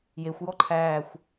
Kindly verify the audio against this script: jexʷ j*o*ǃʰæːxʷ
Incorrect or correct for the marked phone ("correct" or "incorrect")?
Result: incorrect